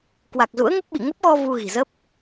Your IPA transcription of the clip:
k w a˨˩ k̚ z ṵ˧˥ ə̯ ŋ ə˦˥ p̚ ɓ ḭ˧˨ ŋ ə˦˥ p̚ ɣ ɔ˧ v u˧ ɣ i̤˨˩ z ə˦˥ p̚

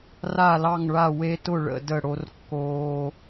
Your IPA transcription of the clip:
r a˥˨ l ɑ˥˨ ŋ ɭ a˥˨ w e˦ t ʊ˥˨ ɭ ə̰˥˨ d ə˥˨ ɽ o˦ r kː oː˦

